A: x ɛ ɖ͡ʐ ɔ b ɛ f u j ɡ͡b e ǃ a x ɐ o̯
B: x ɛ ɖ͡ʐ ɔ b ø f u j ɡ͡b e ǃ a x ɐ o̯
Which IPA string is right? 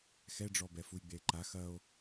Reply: A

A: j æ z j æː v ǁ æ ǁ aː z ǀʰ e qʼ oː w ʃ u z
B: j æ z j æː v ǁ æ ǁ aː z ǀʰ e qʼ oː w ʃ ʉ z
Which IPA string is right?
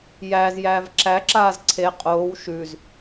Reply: B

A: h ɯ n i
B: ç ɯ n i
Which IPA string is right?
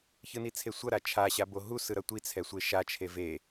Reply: B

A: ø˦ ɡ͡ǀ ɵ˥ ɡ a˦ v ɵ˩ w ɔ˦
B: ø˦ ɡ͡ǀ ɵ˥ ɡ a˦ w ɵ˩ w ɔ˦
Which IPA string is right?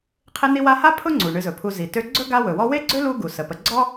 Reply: B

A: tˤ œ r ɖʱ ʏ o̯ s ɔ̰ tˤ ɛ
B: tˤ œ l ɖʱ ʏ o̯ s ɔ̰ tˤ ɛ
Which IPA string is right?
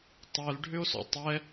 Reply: B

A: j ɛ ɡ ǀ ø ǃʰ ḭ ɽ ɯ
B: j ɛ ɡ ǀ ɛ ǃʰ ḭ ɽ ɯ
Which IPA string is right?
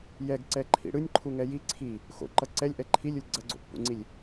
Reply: B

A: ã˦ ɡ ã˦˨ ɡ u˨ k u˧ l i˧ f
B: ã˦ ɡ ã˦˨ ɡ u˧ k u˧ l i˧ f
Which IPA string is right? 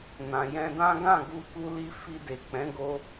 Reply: B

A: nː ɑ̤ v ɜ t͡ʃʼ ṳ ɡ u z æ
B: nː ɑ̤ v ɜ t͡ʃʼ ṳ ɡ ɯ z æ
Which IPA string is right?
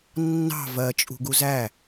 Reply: A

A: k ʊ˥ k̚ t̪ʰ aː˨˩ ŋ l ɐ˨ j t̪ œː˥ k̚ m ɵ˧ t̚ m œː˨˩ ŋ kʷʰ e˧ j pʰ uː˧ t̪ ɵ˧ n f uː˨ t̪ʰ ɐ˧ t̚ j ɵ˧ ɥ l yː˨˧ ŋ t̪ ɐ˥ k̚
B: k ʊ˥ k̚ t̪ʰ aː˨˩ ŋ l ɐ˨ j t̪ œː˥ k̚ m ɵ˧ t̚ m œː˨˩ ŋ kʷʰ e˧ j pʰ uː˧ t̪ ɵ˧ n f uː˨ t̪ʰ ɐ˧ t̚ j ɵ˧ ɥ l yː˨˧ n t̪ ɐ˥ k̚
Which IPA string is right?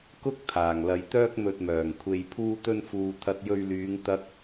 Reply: A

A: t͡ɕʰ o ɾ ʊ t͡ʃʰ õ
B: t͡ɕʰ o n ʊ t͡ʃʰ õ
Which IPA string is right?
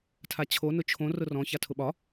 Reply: B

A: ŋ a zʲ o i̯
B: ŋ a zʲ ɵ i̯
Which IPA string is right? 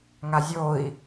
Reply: A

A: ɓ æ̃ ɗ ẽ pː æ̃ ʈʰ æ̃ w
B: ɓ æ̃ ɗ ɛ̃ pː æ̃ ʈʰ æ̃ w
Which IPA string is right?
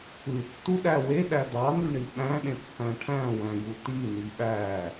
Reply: A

